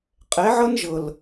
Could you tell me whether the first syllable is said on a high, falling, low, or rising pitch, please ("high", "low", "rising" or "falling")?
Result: rising